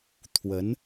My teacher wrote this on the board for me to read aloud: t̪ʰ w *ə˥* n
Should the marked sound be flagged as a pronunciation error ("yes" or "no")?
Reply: yes